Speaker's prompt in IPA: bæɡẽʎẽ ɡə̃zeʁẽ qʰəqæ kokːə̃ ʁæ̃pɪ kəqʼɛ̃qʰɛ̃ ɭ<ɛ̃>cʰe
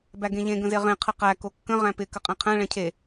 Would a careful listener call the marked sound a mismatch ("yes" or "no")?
no